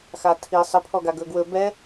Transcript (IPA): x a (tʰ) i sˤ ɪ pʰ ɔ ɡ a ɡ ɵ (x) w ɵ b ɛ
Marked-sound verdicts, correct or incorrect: correct, incorrect

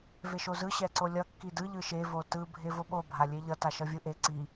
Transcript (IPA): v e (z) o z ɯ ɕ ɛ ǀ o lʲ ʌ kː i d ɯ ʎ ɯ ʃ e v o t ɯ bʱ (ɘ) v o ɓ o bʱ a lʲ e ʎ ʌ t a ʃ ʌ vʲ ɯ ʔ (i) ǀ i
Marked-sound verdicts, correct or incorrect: incorrect, incorrect, incorrect

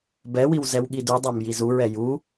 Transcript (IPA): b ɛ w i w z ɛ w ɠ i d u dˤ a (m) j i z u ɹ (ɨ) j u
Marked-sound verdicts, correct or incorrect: correct, incorrect

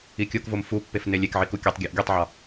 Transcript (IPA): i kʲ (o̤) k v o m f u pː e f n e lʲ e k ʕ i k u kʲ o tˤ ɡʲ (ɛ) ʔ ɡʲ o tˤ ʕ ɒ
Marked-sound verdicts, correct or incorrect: incorrect, incorrect

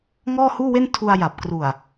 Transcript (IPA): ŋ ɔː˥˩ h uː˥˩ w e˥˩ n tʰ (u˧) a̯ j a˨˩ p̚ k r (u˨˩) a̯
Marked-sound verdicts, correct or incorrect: correct, correct

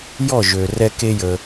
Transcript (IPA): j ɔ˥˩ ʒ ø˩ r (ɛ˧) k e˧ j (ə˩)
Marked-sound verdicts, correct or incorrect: correct, correct

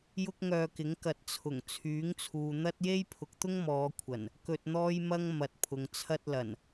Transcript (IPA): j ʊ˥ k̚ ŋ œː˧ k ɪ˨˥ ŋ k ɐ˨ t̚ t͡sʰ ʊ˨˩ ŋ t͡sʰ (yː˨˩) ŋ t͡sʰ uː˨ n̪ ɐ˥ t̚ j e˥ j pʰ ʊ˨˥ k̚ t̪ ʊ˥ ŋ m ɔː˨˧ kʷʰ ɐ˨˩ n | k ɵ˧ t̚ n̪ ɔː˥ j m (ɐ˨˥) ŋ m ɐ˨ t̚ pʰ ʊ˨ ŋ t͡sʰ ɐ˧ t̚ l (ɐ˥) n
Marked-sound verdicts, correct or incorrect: incorrect, incorrect, incorrect

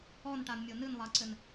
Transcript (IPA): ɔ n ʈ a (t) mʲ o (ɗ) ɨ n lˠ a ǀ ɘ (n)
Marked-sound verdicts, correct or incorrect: incorrect, incorrect, correct

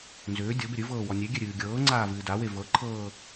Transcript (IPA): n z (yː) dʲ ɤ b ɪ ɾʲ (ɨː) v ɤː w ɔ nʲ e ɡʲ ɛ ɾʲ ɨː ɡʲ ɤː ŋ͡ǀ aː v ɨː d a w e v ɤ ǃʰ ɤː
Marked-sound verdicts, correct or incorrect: incorrect, incorrect

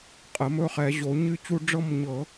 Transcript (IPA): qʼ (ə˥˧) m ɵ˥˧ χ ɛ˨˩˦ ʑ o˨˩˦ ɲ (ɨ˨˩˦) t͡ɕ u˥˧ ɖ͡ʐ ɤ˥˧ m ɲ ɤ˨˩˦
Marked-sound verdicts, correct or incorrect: incorrect, incorrect

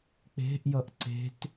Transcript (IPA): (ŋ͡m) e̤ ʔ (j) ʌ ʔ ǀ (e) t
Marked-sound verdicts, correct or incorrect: incorrect, correct, incorrect

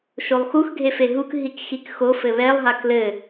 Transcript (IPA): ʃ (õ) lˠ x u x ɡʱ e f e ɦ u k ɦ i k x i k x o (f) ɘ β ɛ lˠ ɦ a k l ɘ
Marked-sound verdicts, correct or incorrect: incorrect, correct

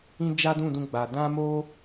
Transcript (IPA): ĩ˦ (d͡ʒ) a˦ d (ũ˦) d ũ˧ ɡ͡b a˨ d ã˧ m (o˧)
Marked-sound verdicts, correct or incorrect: correct, incorrect, correct

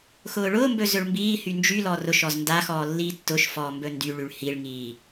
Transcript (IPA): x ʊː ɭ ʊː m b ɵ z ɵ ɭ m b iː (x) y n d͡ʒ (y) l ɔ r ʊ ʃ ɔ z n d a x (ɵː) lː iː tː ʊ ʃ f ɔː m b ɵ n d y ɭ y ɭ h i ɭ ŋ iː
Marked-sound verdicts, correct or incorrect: incorrect, correct, incorrect

